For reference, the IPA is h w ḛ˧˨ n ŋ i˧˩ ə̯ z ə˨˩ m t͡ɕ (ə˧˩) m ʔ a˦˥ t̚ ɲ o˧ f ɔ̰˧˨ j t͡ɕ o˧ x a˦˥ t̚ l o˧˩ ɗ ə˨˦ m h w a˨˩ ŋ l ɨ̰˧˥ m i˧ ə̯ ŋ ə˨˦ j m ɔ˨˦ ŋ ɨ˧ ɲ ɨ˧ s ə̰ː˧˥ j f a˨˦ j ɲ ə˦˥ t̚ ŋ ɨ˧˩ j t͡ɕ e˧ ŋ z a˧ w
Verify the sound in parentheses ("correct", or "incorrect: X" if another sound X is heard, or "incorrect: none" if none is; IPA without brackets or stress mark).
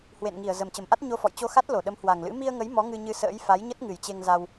correct